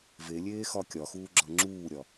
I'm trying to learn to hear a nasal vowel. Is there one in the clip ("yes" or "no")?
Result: no